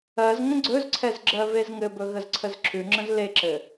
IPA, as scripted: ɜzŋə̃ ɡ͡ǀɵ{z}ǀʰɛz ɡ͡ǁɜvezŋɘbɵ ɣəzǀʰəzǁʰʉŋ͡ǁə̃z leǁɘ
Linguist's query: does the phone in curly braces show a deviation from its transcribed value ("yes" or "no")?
no